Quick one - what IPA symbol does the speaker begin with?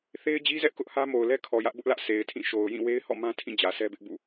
θ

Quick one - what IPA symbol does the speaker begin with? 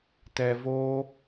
t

